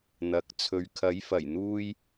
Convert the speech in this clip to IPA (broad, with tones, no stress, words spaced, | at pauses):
n̪ɐ˨˥k̚ t͡sʰɵ˨ɥkʰɐ˨˥jfɐ˨˩j n̪uː˥j